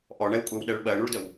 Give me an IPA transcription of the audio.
ʔ ɔ ɳ ɛ w kʷʼ ɛ w ɗ ɛ ɭ ɓ ɜ ɳ u ɭ d ə w

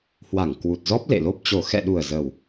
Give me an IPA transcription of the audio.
h w a˧˩ ŋ k w u˨˩ t̚ z ɔ˦˥ p̚ l ḛ˧˨ l o˦˥ p̚ t͡ɕ o˨˩ x ɛ̰˧˨ ɗ u˨˩ ə̯ z ə˨˩ w

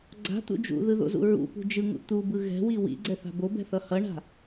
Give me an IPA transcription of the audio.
ɡ͡ǀ a̤ t̪ ṵ d͡ʒ ṵ ð ɯ ð o̰ z ṵ ɹ ṵ p ṳ d͡ʒ ɯ ŋ ṵ t̪ u b ɯ ɣ ɛ̤ w i w ḭ ɡ͡ǀ ɛ θ a̤ b o b ɛ̤ θ ʌ h ʌ ɳ a̤

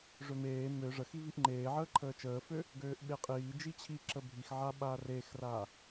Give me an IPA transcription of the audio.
ʐ ø m eː m ø ʐ ə x i v i ʔ ŋ͡ǃ eː ʕ əː ǃʰ əː t͡ʃ əː f ø | ɡ øː ʔ ɓ e qʼ iː d͡ʒ i t͡ɕʰ i ǁ ə bʱ i x ʕ a ɓ aː r eː x r aː

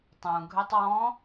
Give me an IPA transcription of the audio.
tˤ ũ ɡʱ ø tˤ w ɔ̃

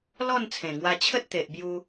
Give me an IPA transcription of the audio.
l ɔ˥˧ n t͡sʰ ẽ˨˩ ŋ w a˧ t͡ɕʰ ə˦ t̚ t̪ e˨ ʔ b j u˧

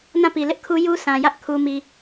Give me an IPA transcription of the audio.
n ã˦˨ p i˨ l ɪ˦ ʔ kʰ u˦ j u˦ s ã˨ j ä˦ ʔ kʰ u˦ m i˦

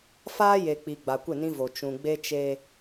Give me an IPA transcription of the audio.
f aː˦ j e˨ k͡p i˨ ɡ͡b a˨ kʷ ɪ˦˨ n ĩ˦ v o˨ t͡ʃ ũ˨ ɡ͡b e˦ t͡ʃ eː˦

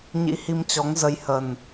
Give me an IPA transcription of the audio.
ɲ ḭ˧˥ h i˧ m t͡ɕ ɔ˨˦ ŋ z ə˧ j h ə˨˩ n

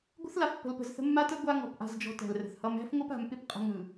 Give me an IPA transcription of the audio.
ɡʷ ə̤˦ θ l a˨ f pː ə̤˨ l p ə̤˨ z θ ə̤˦ mː a˦ t ə˦ ɡʷ a˦ ŋ ɔ̤˨ p ʔ a̤˦ z d͡ʒ ɔ̤˦ t æ̤˨ l r ə̤˨ θ h ʌ˦ m æ̤˦ f ŋʷ ʌ˦ p a̤˨ m p ɪ˦ p qʼ ə̤˦ ŋ ɯ˨

